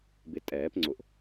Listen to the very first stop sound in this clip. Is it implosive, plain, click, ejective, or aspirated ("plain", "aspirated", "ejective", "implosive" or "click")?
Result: plain